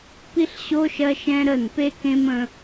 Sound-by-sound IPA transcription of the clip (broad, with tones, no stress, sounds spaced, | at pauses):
p i˦ ɬ ɕ o˦ ʃ ɜ˦ ʃ ɛ̃˦ ɾ ə˦˨ n p e˦ k ẽ˦ m ə̃˦